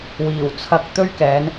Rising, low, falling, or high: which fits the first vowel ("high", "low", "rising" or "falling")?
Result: low